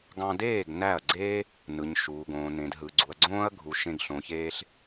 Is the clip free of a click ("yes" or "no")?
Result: no